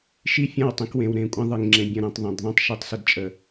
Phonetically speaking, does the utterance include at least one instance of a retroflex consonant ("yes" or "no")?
no